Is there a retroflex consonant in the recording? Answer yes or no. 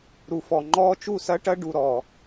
yes